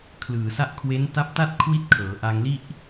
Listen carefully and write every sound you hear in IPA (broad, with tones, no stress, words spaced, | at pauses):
kʰlɯː˨˩sa˥˩ʔ kʰwe˦˥n ta˦˥p̚ta˥˩t̚ kʰwi˥˩t̚kʰɤː˩˦ʔaː˧ŋli˥˩ʔ